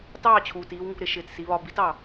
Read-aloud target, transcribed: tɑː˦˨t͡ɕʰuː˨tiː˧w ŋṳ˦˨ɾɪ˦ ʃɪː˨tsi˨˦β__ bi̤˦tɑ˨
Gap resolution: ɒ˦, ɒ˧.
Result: ɒ˧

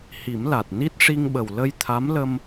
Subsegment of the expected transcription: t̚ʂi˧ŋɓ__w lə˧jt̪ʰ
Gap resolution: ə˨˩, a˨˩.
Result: ə˨˩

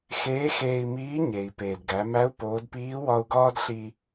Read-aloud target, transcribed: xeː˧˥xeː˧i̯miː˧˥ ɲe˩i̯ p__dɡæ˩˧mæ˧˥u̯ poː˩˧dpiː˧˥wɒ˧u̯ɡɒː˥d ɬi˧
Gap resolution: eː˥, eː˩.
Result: eː˩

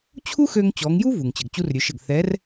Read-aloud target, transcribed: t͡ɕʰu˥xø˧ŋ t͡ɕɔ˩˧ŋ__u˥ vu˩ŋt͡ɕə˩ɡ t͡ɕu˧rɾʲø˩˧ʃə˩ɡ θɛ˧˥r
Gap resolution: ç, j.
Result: j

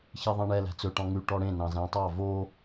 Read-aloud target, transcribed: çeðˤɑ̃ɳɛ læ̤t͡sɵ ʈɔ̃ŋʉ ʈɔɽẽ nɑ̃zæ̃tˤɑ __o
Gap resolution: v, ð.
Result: v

